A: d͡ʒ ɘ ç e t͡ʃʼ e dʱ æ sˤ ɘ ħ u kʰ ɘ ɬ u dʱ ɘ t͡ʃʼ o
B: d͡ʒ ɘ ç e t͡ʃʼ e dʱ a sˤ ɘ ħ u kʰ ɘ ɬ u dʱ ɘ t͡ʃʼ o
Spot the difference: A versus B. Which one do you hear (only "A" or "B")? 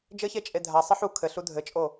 B